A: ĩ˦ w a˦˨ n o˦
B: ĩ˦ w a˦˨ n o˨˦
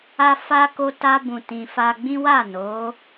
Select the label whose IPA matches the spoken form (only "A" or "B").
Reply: B